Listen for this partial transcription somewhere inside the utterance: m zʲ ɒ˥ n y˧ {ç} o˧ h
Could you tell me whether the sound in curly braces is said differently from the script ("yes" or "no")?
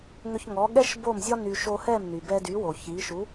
yes